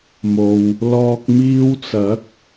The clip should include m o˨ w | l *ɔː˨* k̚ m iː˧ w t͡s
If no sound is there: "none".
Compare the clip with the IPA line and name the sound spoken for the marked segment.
ɔː˨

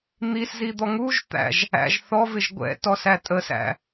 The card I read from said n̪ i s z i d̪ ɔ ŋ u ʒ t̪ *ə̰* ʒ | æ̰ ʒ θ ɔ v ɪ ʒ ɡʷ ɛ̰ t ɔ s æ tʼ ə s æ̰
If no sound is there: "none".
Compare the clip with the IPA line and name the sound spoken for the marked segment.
æ̰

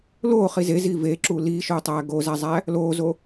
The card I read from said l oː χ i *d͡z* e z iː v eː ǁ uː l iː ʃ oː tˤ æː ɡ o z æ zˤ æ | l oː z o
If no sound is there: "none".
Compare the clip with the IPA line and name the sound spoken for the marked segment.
z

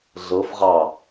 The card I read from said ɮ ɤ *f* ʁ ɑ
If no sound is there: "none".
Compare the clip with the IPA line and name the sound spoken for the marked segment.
f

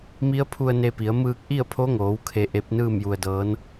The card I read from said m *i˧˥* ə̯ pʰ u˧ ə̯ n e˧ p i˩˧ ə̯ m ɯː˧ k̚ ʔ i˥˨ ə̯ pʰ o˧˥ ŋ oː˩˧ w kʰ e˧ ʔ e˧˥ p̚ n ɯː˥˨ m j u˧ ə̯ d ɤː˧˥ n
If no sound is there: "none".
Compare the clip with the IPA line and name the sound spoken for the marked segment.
i˧˥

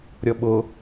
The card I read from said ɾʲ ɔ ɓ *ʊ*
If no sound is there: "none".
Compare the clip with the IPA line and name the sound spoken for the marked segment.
ʊ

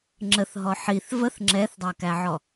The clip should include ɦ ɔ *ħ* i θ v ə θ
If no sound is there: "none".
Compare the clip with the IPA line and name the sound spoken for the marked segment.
ħ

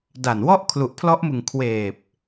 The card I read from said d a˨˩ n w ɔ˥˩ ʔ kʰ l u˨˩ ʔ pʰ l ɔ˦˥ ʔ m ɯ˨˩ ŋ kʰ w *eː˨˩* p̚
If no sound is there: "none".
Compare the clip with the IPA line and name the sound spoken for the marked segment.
eː˨˩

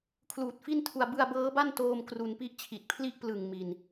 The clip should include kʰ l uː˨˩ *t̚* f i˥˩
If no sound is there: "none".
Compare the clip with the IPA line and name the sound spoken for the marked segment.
t̚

